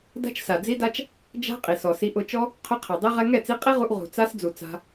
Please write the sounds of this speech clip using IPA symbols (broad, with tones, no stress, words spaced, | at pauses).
da̤˦t͡ʃsa˨d͡zi˦da˦t͡ʃ | d͡ʒa̤˦ qʼi˨sɔ˨ si˧ ʔʊ˧t͡ʃɔ˦ | qʰʊ˦qʰɛ˨dˤi˦ ʁɛ˧ŋɛ˦˨t͡si˧ qʼi˦ʁu˧ʔ ʁṳ˨ t͡sa˦s d͡zu˨ t͡sa̤˧